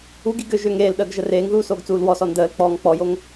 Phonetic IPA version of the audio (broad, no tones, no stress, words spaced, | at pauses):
uɡiɡ ʏ ʒʏːŋeːlɗəːɡ ʒəreːŋðuː soːɡt͡suːlwɔsɔ ndəːl k͡pɔːŋk͡pɔjoŋ